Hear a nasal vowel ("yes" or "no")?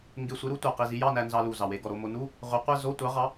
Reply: no